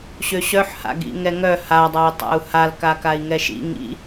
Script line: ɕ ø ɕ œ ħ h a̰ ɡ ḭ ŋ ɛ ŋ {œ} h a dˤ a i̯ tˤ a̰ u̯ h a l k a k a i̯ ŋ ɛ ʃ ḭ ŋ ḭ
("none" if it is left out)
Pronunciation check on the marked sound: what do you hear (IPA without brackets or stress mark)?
œ